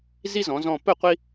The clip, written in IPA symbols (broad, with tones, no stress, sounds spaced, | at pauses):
z i˦ z ɔ̃˩˧ z ɔ̃˧˩ p ɵ˥˩ qʷ i˦